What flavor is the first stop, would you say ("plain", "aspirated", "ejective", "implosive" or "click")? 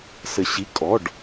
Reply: ejective